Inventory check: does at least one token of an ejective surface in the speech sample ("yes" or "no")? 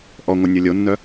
no